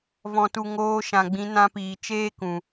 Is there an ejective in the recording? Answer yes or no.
no